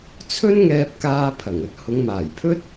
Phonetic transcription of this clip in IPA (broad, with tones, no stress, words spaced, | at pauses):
t͡sʰɵ˥nŋɛː˧p̚kaː˧pʰɐ˨˩ŋ ɵ˥t̚hʊ˨˧ŋmaː˨˩jpʰɵ˥t̚